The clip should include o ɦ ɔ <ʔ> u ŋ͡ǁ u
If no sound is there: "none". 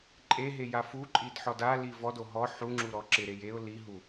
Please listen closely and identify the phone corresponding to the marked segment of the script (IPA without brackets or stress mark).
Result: ħ